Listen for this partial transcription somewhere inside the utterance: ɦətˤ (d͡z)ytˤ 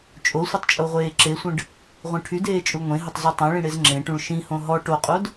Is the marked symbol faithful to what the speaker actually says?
no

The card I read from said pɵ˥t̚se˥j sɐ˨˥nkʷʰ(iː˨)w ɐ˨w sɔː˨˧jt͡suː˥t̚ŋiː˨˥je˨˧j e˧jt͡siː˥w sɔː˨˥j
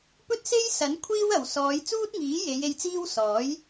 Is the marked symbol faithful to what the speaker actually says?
no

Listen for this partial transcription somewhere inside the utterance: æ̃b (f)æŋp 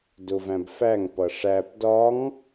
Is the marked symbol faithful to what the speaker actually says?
yes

